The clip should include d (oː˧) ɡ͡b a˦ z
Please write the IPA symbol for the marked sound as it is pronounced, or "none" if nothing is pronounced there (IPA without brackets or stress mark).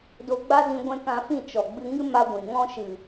o˧